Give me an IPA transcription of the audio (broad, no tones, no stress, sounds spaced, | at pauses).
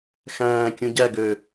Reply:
x æ̃ː kʲ ũ ɟ æ ɡ ø